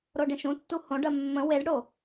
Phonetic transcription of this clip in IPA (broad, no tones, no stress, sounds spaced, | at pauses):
ɾ o ɖ ẽ ʃ ũ tː u h õ ɖ ɜ mː ə̃ w e ɖ ɽ o